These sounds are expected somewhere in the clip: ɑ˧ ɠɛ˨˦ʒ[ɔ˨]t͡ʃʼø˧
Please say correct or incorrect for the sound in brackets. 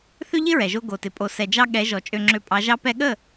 correct